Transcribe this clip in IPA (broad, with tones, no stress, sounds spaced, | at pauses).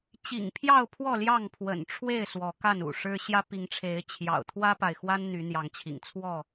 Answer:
t͡ɕ ḭ˨˩ ŋ pʰ j ɑ˥˨ ʊ̯ pʰ w ɔ˥˨ l j ɑ˥˨ ŋ pʰ w ə̰˨˩ n ʈ͡ʂʰ w e˥˨ ɪ̯ s w ɔ˨˦ k a˥˨ n ṵ˨˩ ʂ ɻ̩˦ ɕ j ä˦ p i˨˦ ŋ ʈ͡ʂʰ e˨˦ ɪ̯ t͡ɕʰ j ɑ̰˨˩ ʊ̯ t̪ʰ w ä˦ p a˨ ɪ̯ x w a˦ n n̪ y˨˦ n̪ j ɑ˨˦ ŋ t͡ɕʰ ḭ˨˩ ŋ t͡sʰ w ɔ˥˨